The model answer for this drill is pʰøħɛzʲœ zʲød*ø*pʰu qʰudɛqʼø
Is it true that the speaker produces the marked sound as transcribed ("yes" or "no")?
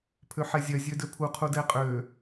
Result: yes